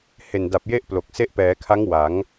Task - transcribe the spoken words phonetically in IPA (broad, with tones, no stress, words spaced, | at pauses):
he˨˩nda˨˩p̚je˥˩ʔ plo˨˩k̚se˥˩ʔ pɛː˩˦kʰa˦˥ŋ wa˩˦ŋ